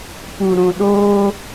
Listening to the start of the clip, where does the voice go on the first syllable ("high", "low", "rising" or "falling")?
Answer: low